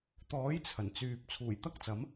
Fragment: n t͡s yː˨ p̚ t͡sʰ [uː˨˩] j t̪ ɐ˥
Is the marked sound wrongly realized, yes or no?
no